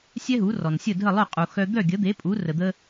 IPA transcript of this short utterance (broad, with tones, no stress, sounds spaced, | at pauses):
sʲ ɛ˥ ɦ u˩˥ r ɔ˩ n sʲ ə˥˩ dʱ ə˥˩ lˠ œ˥˩ qʼ u˩ x œ˧ d̪ œ˥˩ ɡʲ ə˩˥ d̪ e˩˥ pʼ u˩˥ r ə˩ d̪ ə˧